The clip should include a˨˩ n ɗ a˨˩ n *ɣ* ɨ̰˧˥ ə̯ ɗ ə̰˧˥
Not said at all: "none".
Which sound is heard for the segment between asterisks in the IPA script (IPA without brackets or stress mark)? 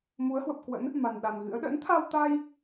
ɣ